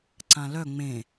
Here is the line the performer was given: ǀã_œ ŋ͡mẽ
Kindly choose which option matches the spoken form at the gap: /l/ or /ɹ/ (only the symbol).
l